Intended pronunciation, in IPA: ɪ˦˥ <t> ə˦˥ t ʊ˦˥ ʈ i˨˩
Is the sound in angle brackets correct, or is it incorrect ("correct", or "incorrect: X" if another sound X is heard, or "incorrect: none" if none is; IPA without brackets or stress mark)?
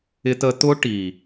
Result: correct